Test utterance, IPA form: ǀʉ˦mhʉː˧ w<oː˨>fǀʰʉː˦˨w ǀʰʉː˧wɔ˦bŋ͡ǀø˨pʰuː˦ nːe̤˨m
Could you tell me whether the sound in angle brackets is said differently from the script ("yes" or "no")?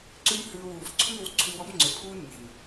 yes